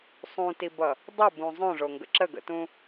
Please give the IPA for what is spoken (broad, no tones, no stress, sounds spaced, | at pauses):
sˤ ũ t i b ʌ | dˤ ə b ũ zˤ õ ʐ o ŋ ɡ ə̰ ǁ ə ɡ ə̰ t ũ